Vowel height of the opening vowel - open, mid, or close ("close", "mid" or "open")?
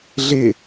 close